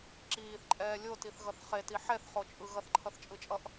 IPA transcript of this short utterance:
ǁiːθǃʼɛː lʲotiθɣʌθ χeti ħɛθχot͡ʃʼɯ ɣʌθǃʰʌθt͡ʃʼɯt͡ʃʼʌʔ

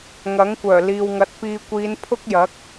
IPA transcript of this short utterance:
ŋɐ˨˥ŋkʷœː˨˩ liː˨wŋɐ˨˥t̚piː˧ kʷiː˨˧n pʰʊ˥k̚jɐ˨˥k̚

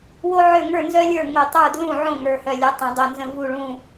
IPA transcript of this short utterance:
wo˥ʕø˥˨ ŋə˞˥˨nzœ˥lʲə˞˥˨ ŋo˧˩tˤə˞˥˨ dlũ˥˨ʕõ˥˨ ŋə˞˧˩hœ˧˩ lʲu˨˩˦tˤõ˨˩˦dˤo˧˩nzə̃˥˨ vu˥˨ɭũ˥˨

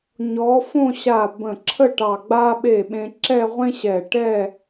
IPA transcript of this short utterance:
ɲɔ˩˧ fõ˥˧ ɕa˧˩ bə̃˧˩ǁʰə˥˧ʈɑ˧˩ ɡ͡ba˧ɓe˧˩ ɓẽ˧ǁɛ˥˧ʁʷẽ˥ ɕɛ˧˩ʈɛ˥˧

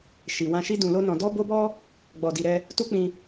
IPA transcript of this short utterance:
ʃi˨ wã˧ʃi˦ dũ˧lo˦nɔ̃˧ dɔ˦bo˦bɔ˦ | ɡ͡bɔ˧di˧ɾɛ˦ | tu˦k͡pĩ˧

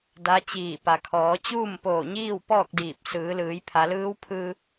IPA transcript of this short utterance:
da˧˥t͡ɕiː˧˩ pa˩kʰɔː˩˧ t͡ɕuː˥˨mpoː˧˩ɲiː˥˨w pɔː˥˨k̚diː˧˩p̚ sɯː˩˧lɯː˩˧j pʰa˩˧lɯː˧˥wpʰɯː˧

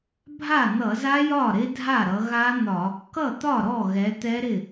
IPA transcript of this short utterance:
bʱa˥˩n̪ʌ˧˩˧za˦˥jɒ˥˩ ɾɪ˦˥dʱa˥˩ ɾʌ˩˧ɣa˦˥n̪ɒ˧˩˧ | kʌ˥˩t̪ɒ˥˩ ɾɔ˥˩ɣɛ˩˧ t̪ɛ˦˥ɾɪ˥˩

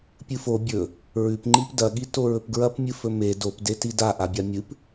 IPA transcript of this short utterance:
pʲɨfo bʲɵ | ɹʉpŋ͡ǃip dɐɠi toɹɵpɡɹɐpmʲɨ fɵme dopdeti daʔabʲa mʲɨp

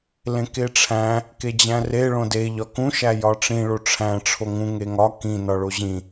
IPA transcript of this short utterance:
lẽkeʈ͡ʂʰæ̃ | ked͡ʑæ̃re ɭõde ʎɒkũ ʃæjɒʈ͡ʂĩ ɭoʈ͡ʂʰæ̃ ʈ͡ʂʰoŋũ ŋeŋɒ kĩ nɒɭoʑĩ

